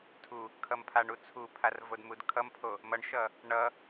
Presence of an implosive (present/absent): absent